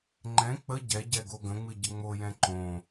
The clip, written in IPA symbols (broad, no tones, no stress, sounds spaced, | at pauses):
ŋ͡ǃ ɛ̃ k͡p ə ɟ ɛ ɟ ɛ ɡ o ɡ ə̃ ŋ͡m ɨ ɟ ə ŋ͡m o j ɛ̃ ǃ õ